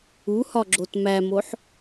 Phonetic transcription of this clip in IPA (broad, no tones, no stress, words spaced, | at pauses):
uhɒɡ͡ǁot mæmoħ